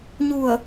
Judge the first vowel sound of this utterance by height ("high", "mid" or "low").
high